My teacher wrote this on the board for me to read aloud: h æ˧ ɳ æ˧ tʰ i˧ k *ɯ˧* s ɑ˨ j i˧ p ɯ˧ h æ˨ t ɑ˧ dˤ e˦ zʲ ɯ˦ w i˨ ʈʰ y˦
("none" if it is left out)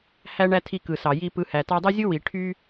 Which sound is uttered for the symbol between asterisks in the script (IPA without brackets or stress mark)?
ɯ˨